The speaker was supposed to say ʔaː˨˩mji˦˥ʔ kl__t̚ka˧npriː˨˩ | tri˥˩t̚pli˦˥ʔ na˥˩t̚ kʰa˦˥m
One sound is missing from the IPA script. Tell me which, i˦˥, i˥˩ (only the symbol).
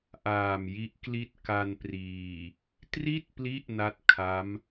i˥˩